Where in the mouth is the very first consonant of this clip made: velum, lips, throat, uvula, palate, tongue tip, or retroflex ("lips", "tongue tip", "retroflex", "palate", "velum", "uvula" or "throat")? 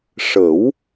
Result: retroflex